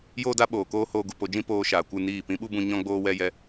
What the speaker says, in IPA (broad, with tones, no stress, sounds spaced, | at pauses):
j oː˦ d a˦ ɓ oː˨ k oː˦ h oː˧ ɡ u˨ p o˧ d͡ʒ ĩ˦ p oː˧ ʃ aː˨ kʷ ɨ˦˨ n iː˦˨ p ĩ˧ ɓ u˦ b ũ˧ ɲ ɔ̃˦ ɡ͡b oː˦ w ɛ˦ j ɛ˦